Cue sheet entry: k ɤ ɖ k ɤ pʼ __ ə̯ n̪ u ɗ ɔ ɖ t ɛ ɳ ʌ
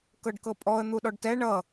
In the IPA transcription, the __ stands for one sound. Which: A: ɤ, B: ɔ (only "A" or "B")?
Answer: B